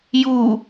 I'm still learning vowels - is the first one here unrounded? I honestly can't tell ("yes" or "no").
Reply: no